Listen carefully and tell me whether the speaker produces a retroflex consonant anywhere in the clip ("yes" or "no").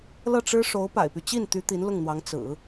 yes